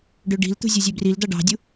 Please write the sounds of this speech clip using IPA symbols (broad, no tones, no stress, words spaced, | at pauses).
ɖøɖi̤lt̪ṳ zʲuzʲøbrildɑ ɖɑ̤dʲu